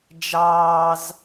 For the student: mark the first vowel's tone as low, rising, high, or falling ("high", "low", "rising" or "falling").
high